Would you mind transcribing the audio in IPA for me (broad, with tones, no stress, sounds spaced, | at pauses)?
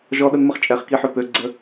ʒ ɔ˧ ɗ ə˧ n m ə˧ χ t͡ʃʼ ɛ˨ χ k i˧ ħ ø˨ p ø˧ ɡ͡ǀ ə˧